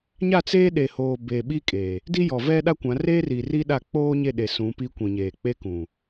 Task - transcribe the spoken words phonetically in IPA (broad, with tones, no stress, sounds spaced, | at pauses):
ɲ a˦˨ t͡s eː˦ ɗ e˨ h oː˨ b eː˨ ɓ i˦ kʼ e˨ | d i˦ j ɔ˨ v ɛ˦ ɗ a˦ kʷ ã˨˦ r eː˦ r i˨ r i˦ ɗ a˦˨ k͡p oː˦ ɲ e˦˨ ɗ e˨ s ũ˨˦ p iː˦ kʷ ĩ˨ ɲ eː˨ k͡p e˦ k ũ˨